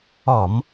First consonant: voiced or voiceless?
voiced